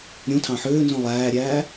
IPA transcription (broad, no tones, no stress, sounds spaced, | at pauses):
ɾʲ ũ tʰ ɑ̃ ħ øː n z ũ lˠ æː ɾʲ æː